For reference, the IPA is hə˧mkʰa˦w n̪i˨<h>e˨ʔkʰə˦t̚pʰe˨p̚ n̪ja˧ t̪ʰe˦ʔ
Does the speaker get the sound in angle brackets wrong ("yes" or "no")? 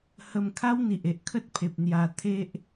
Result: yes